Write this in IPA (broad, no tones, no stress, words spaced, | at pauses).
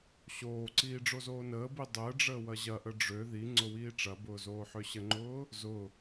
ɕoːǀiː ɖ͡ʐozoːnəːbi dˤəːɖ͡ʐəː wɐʑɐʔə ɖ͡ʐø ðiŋ͡ǀʊ wiːʈ͡ʂɐbʊː zoːħøɕəŋ͡ǃʊː | zʊ